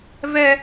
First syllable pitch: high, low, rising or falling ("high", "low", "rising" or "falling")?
high